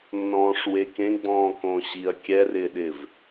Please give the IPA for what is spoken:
nːɔ̃ːʂwekẽ ɡ͡bɔ̃ːkõːɕiɐ̯ kʲɛrɪːɗɪːv

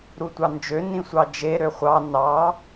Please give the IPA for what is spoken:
ɾutʷɑnd͡ʒø nĩsʷɑd͡ʒe ɾøχʷɑ nɑ

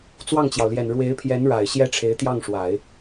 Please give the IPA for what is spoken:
t͡swɑ˥˩ŋt͡ɕjɑ˩ʊ̯ljɛ˨˩n ɻwe˧˥ɪ̯pʰjɛ˧˥nɻa˨˩ɪ̯ ɕjɛ˥ʈ͡ʂʰe˧˥ɪ̯t̪jɑ˥˩ŋʂwa˨˩˦ɪ̯

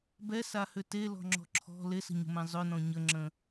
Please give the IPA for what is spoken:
bɛsahʏ telɔ̤ŋ͡ǁɔ̤ ǁʰɔ̤ lesə̤ɲə̤mɛ̃ zˤʏnɔ̃ ɲəŋ͡ǁə̃

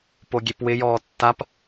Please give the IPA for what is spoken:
poɡʲepwɪ jɔːtːap

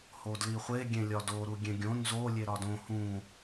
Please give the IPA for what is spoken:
hodliχʷe ɡʲẽlʲɒdo ɾuɡʲẽɡʲõ nzo lʲeɾɒdõ hũ

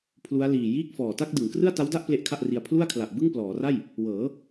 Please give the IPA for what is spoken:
pʰlu˦˥a̯liː˨˩ jiː˥˩k̚fɔː˨˩ ta˥˩k̚dɯ˩˦ŋ krɯ˥˩a̯ta˦˥wda˥˩ʔ ple˦˥ʔkʰa˥˩ʔri˧a̯ pʰlu˥˩a̯kʰla˨˩ʔ bɯ˥˩ŋplɔː˩˦ra˥˩j | wɤː˩˦

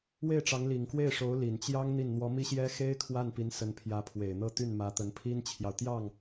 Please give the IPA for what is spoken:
we˥˩ɪ̯ʈ͡ʂɑ˧˥ŋli˨˩ŋ kwe˥˩ɪ̯ʂo˧˥ʊ̯ li˨˩nt͡ɕjɑ˥ŋ n̪i˥˩n n̪wɔ˧˥mi˥ɕjɛ˥ xe˥ɪ̯ kʰwa˥˩npi˧˥n sə˧˥npʰjä˧˥pʰwe˨˩ɪ̯ n̪ɤ˥˧t̪y˥˩n mä˧˥t̪ə˧˥npʰi˥nt͡ɕʰjɑ˨ʊ̯ t̪jɑ˥˩ŋ

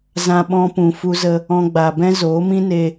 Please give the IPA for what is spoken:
zã˧ɓɔ̃˧pũ˨ fu˧zə˧ | ɔ̃˧ɡ͡ba˨bɛ̃˦ zoː˨˦ mĩ˦ne˧

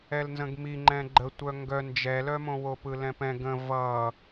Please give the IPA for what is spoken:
ɛlnzə̃ɡmi ŋ͡ǃɛ̃ɡ͡ǃətʷœ ŋɡœ nd͡ʒɛlœmõ wopɯlɛ̃pɛ̃ ɡə̃ vʌ

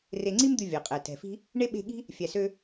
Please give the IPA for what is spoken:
re˨ŋ͡ǀi˦md̪ʉ˨ vʲɑ˩qʼæ˩ tɛ̤˩fi̤˦ | ɳe˥ɓe̤˦ɠi̤˥ | fʲæ˨sø˦

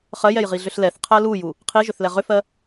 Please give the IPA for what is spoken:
χɜjɛj ʁiɮʏɬlɛθqʰɜ luju | qʰiʒʏθ lɛʁʏfɜ

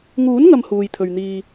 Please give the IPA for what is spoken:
ŋuː˨˥nŋɐ˨m huː˨jt̪ʰɵ˨ɥ n̪iː˧

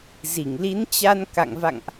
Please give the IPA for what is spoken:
zi˧˩ŋli˨˦nt͡ɕa˧n ka̰˧˨ŋ va̰˧˨ŋʔ

